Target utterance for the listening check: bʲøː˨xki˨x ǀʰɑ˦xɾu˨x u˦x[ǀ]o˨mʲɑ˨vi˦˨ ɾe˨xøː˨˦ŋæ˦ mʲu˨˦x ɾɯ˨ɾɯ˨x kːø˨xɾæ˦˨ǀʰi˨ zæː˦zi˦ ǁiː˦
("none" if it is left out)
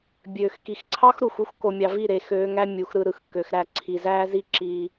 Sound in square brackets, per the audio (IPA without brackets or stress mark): k